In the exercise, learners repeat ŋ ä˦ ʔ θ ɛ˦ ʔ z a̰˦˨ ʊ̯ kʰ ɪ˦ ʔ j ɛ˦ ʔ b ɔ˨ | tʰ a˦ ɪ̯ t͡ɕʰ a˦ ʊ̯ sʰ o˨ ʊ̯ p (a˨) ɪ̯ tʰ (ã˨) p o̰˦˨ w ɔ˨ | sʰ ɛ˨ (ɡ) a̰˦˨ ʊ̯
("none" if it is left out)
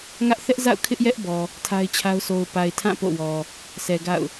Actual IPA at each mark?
a˨, ã˦˨, ɡ

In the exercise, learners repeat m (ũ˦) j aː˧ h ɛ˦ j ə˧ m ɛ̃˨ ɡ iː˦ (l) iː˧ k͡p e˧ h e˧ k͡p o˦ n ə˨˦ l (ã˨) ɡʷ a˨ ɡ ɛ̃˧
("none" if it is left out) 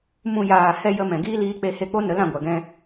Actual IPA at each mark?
ũ˦, l, ã˨

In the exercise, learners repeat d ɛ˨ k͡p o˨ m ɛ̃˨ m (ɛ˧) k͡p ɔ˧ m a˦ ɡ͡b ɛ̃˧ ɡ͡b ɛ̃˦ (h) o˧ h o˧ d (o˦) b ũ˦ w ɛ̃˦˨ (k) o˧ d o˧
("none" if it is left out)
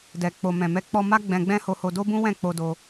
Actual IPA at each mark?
ɛ˧, h, o˦, k͡p

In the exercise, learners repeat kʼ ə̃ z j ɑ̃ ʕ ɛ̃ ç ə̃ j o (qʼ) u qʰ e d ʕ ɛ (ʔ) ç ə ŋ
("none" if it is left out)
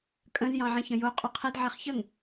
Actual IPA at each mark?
qʼ, χ

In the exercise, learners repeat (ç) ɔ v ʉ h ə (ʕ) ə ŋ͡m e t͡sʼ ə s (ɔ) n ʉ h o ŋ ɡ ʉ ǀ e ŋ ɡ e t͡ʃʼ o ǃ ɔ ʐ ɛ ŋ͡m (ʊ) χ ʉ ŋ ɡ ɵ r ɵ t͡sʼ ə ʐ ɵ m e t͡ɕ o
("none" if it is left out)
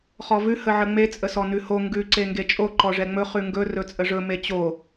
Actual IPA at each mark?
χ, ʕ, ɔ, ɵ

